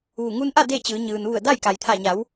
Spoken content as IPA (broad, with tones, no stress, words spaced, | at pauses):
ʋu˧˩ ŋu˧nʔa˥˨ de˥˨t͡ɕɯː˩˧ ɲɯː˩nʋu˧˩ə̯ da˥˨j ka˩jt̪ʰa˧˩ɲa˩˧w